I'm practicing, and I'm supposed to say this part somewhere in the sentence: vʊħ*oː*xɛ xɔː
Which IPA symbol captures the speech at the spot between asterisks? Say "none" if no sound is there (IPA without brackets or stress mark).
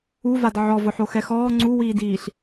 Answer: o